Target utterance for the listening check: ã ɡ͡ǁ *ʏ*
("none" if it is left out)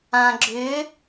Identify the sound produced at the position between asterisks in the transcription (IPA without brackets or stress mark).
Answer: ʏ